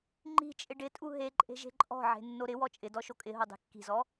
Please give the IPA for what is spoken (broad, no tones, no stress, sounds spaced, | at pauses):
ŋ͡ǃ i̤ t͡ʃʼ ɪ ɖ ɪ tʼ u ɦ e ǃʼ e̤ ʒ e̤ ǃʼ ɔ̤ ʕ e̤ nː o ɾ ɪ w ɔ t͡ʃʼ ɪ d ɔ ʃ o kʼ ɪ ɦ o dˤ e̤ kː i̤ z ɔ